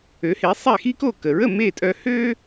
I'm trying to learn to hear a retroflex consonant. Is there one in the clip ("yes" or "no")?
no